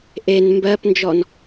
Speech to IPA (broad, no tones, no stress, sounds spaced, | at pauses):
ʔ e n m b ɜ p n d͡ʒ ɔ n